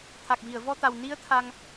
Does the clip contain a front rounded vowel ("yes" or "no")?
no